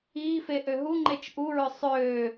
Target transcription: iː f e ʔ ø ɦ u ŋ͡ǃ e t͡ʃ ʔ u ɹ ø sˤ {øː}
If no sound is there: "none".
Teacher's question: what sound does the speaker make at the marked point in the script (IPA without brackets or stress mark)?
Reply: øː